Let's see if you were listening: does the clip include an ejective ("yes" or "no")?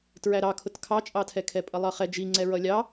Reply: yes